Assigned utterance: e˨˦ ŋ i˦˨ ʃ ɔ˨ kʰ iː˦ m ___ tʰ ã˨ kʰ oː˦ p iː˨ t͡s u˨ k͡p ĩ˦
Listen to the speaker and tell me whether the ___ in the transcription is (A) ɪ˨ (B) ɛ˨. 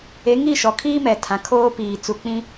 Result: B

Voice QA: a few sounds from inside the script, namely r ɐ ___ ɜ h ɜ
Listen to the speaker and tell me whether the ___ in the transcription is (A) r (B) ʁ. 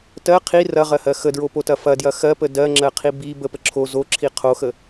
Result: B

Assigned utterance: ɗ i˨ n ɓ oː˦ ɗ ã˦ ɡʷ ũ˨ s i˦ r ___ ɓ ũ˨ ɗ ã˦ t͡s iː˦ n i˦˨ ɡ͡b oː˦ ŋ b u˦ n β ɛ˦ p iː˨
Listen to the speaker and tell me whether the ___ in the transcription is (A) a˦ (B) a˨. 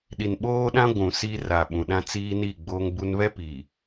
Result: B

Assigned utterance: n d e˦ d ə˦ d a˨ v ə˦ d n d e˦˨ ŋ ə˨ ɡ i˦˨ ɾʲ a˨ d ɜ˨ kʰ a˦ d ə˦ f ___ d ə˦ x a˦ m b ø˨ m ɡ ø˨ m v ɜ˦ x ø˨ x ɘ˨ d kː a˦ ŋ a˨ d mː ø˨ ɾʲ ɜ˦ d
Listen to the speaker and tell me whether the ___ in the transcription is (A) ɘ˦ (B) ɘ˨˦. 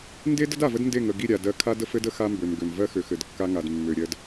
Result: A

